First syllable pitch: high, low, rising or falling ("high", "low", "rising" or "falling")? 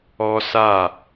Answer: high